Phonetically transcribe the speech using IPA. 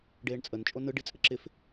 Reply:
ɖ eː ɳ t͡sʼ ə n t͡ʃʼ o n ɯ ɖ i t͡sʼ ə ǁ ɪ f

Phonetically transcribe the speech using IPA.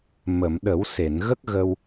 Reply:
m ə˨˩˨ m ɗ ə˨˩˦ w s e˨˩˨ n ɣ ə˦˥ k̚ ɣ ə˧ w

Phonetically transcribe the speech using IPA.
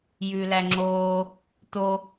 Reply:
j ʉ l æ ŋ͡ǁ oː | t o

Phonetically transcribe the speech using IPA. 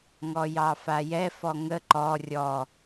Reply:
ŋ ɔ j ɑ f a j ɛ f ɔ ŋ ə ǃ ɔ rʲ ɔ

